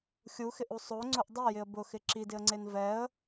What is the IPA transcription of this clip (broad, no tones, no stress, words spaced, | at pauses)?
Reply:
xʲuxɪʔu sˤoŋ͡ǀʊʔ dˤejɪə̯ bʊxɪ ǁidɪə̯ŋ͡ǀen vɛə̯